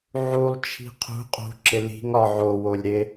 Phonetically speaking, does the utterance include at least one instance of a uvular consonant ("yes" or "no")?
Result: yes